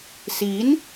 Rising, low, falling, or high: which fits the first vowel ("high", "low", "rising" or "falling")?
rising